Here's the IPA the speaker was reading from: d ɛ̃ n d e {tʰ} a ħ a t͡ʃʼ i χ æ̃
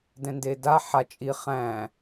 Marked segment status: incorrect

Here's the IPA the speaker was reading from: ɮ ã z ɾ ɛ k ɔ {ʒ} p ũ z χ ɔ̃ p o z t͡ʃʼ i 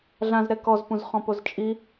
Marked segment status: incorrect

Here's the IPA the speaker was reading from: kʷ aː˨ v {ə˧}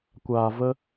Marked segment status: correct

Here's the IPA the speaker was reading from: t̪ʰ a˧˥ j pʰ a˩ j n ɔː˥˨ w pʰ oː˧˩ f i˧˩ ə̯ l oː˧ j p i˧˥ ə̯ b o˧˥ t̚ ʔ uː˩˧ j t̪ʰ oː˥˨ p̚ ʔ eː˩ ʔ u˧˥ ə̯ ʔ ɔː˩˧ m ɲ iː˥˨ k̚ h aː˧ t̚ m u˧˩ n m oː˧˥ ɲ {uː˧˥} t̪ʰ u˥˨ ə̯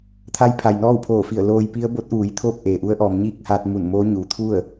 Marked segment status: incorrect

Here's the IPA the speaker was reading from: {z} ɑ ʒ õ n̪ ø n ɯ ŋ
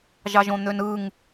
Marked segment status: incorrect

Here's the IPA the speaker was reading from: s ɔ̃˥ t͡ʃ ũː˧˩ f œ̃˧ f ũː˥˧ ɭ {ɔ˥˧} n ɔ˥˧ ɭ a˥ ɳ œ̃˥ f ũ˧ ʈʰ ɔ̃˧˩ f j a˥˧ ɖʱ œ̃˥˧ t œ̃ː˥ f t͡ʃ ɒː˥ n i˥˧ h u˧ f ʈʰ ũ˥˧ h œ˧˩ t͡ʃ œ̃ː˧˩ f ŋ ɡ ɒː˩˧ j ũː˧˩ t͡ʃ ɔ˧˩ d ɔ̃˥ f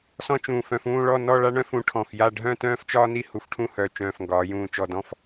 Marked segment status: correct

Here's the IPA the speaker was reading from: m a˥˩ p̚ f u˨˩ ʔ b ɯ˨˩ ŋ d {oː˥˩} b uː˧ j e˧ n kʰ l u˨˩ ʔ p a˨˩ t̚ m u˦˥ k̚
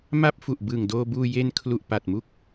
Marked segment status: incorrect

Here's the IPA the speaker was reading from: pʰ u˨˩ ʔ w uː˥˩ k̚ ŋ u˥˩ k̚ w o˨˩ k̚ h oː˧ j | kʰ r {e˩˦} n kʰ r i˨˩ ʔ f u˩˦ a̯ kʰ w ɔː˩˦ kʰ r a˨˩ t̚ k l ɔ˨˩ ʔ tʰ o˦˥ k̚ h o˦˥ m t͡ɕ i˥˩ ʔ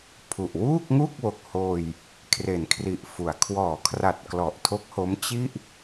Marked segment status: correct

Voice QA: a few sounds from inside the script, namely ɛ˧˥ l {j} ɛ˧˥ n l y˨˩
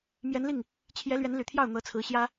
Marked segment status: incorrect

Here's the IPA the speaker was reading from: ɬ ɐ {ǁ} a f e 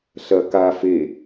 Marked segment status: incorrect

